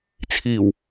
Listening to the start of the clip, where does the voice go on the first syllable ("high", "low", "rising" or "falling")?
low